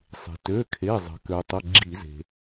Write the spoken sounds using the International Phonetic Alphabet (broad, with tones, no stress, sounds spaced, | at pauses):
sˤ e̤˩ t ø˩˧˩ kʰ e˩˧˩ zˤ ə̤˩ k ø˩ tˤ ə˩˧˩ ɡ͡ǁ i˧˩˧ z e̤˩